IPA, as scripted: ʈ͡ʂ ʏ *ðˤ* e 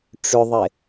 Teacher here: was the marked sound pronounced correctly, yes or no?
yes